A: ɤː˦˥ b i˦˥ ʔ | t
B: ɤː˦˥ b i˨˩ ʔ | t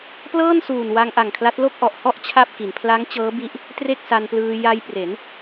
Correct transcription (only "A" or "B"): A